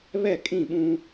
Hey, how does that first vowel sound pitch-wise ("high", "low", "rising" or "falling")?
falling